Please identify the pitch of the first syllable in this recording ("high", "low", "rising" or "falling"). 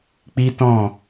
high